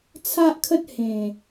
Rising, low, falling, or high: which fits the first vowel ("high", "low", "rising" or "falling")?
high